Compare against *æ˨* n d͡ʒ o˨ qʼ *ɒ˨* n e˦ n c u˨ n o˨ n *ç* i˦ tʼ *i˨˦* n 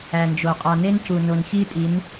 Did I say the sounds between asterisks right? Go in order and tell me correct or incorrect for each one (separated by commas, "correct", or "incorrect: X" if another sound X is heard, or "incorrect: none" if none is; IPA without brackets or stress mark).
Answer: correct, correct, correct, correct